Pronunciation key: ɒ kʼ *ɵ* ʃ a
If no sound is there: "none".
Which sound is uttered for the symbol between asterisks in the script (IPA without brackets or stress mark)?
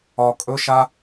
ɵ